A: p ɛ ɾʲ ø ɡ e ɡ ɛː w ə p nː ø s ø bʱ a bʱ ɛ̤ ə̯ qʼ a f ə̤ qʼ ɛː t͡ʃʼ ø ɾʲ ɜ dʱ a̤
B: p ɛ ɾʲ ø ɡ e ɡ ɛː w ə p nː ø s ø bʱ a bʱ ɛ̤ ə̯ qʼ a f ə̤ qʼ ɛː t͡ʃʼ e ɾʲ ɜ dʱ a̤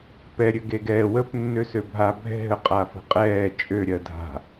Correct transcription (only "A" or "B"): A